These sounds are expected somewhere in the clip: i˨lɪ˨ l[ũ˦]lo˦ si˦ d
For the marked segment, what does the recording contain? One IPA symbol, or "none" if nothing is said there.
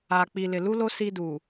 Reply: u˦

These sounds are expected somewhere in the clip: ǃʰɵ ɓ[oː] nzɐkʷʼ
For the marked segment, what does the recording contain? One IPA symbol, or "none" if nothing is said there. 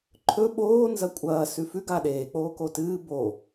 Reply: oː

